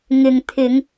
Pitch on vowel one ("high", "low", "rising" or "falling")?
low